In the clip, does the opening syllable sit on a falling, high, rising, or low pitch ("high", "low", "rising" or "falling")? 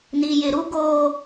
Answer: low